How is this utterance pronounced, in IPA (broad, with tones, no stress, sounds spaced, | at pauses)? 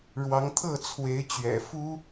ɻ w ɑ˨˦ ŋ t̪ʰ ɤ˥˨ t͡sʰ w e˨˦ ɪ̯ t͡ɕ ɥ ɛ̰˨˩ f u˦